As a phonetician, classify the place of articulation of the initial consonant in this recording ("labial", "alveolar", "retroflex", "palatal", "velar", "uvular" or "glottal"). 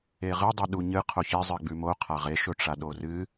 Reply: uvular